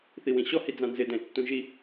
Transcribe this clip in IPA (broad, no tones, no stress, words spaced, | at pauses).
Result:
θiwĩɕɔ hid͡zãnzɪ dɛ̃ɪ̯tːũʒi